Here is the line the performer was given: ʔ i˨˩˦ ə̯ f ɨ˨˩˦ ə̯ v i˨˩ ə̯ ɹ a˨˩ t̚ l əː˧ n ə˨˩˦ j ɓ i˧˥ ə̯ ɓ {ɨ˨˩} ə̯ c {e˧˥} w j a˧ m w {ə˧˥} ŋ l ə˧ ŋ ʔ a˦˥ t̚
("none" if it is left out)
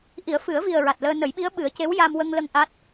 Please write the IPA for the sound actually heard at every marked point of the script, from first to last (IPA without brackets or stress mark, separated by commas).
ɨ˨˩˦, e˧˥, ə˧